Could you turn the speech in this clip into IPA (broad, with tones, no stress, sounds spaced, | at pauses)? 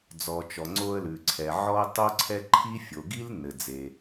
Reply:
d͡z ɔ˩ t͡ʃ ɔ˩ ŋ͡ǀ o˧ ə̯ l ʉ˩ ǀʰ ɛ˩ ʕ ɔ˧ ʊ̯ tˤ o˥ ǀʰ ɛ˥ ǃʰ i˥ fʲ o˩ ɡ i˥ l n ɘ˩ d͡z e˩